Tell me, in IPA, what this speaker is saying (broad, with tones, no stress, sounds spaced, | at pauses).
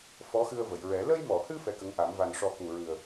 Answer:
f ɔ˧˥ x ɨ˧ ə̯ v ə˨˩˨ j ɹ ɛ˨˩˦ l ə˧ j m ɔ˨˩˨ h ɨ˧ f ɛ˧˥ k ə˧˥ ŋ ʔ a˨˩˦ m v a˨˩ n ʂ ɔ˨˩˦ k u˨˩ ɹ ɨ˨˩ ə̯